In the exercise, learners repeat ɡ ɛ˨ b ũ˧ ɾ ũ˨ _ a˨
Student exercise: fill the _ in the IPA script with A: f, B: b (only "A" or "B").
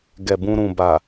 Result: B